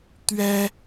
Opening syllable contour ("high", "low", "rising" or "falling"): high